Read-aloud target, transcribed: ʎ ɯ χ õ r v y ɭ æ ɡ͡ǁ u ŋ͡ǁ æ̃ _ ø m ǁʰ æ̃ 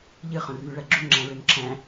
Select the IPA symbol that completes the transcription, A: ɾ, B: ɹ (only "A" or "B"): B